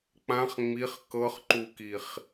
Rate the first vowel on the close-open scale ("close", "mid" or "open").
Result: open